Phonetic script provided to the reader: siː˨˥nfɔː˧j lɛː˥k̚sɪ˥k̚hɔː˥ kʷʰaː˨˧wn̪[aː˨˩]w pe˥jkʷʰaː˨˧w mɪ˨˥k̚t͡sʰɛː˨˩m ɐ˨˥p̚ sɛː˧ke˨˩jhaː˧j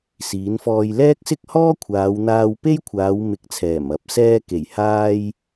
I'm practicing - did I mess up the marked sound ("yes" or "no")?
yes